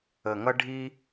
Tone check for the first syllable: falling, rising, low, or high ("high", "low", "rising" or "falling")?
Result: low